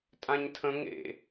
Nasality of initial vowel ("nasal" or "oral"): nasal